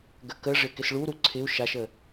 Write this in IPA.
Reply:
ɡəkəʐɪ kɪsɭuɾu ǀʰɪu̯ ʃaʃə

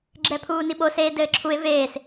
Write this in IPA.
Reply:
ɡ͡ǁɛpʰuːniɓo seːdɘːǁʰuɪ̯ veːs

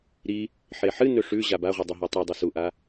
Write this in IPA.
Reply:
ɾi | ħeħɨnɵ ʂʉ ʑabaʁʷi dˤɵɦotˤedˤʉ suʔa

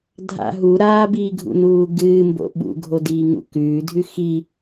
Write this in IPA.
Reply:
dʱa̰ ɦu ɾaːbiːɡʱṵnuː ɡɨːmbo̰ ɓṵɡʱodiːŋṵ kʉːdʱʉ xi

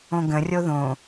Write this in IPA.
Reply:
õɡə̃rʲo ðõ

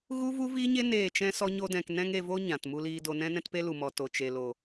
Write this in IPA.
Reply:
ɣu˦vu˦viː˦ɲe˦ neː˦˨t͡ʃɛ̃˦ sɔ˦ɲo˦dɛ̃˧k nɛ̃˦ŋe˧vo˦ ɲã˨t mu˧liː˧do˧ nɛ̃˦nɛ̃˦t pe˦lu˨mɔ˨ to˨t͡ʃe˨ lo˨

